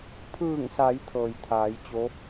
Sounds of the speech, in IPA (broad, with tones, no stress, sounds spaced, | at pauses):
pʰ ɯː˧˩ ŋ s a˩˧ j t̪ʰ ɤː˩ j t̪ʰ aː˩˧ j t͡ɕ o˧˥